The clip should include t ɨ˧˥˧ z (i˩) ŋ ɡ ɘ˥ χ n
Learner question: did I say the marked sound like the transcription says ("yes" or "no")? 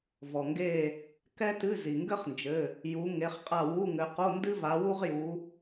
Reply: yes